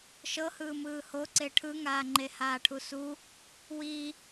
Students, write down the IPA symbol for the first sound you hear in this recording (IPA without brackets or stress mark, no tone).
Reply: ʃ